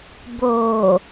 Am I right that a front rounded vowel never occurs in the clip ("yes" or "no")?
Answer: yes